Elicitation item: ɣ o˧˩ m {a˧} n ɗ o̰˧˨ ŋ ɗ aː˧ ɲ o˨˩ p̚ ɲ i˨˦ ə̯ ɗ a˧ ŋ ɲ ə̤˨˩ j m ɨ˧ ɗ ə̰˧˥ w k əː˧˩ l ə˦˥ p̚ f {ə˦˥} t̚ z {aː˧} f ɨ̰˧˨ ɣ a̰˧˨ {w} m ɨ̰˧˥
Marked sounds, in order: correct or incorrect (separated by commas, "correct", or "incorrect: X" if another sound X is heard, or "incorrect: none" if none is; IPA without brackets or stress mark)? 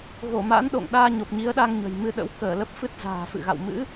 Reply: incorrect: a̰˧˥, incorrect: ɨ˦˥, incorrect: a̤ː˨˩, correct